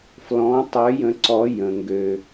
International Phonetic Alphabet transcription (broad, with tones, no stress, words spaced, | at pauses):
flɔ̃˨˥tˤø˨˥jə̃˨˥ ǀɔ˨˥jə̃˩ ŋɡø˩